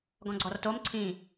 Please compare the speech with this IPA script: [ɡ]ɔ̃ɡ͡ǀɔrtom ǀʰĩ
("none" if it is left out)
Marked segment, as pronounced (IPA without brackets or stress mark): ɡ